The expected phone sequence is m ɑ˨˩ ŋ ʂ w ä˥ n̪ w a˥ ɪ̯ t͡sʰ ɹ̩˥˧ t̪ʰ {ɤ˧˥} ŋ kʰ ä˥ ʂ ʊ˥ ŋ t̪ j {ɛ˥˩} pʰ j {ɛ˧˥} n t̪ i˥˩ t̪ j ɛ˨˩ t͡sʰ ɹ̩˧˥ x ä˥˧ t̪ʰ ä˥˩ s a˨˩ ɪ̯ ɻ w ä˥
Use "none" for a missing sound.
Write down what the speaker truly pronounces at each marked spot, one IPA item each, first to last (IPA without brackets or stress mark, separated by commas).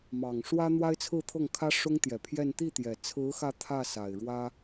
ɤ˥˩, ɛ˨˩, ɛ˥˧